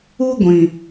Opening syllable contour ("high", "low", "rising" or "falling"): high